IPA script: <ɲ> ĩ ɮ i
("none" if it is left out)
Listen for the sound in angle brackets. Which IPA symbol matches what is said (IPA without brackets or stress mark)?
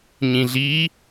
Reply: ɲ